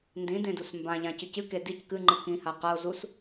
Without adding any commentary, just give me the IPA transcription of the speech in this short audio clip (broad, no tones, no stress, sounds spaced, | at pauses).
n d ĩ d ẽ d u s m b ã ʎ ã c ʉ c ɨ k e d i c k ɨ ŋ͡ǃ ɨ k ĩ h a q a o̯ z u s